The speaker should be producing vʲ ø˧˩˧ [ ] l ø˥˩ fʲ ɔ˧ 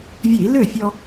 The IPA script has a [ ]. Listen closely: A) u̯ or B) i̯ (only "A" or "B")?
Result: B